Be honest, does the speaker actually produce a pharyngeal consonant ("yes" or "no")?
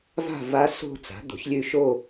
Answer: no